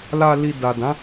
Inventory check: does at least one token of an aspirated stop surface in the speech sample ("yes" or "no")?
no